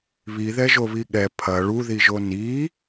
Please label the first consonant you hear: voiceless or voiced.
voiced